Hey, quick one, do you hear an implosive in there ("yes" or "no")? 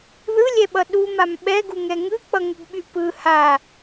yes